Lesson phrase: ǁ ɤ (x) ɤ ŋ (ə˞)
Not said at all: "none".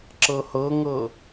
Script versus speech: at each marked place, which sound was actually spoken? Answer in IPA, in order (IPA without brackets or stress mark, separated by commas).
h, ɤ